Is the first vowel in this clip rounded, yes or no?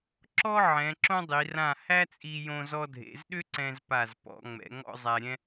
yes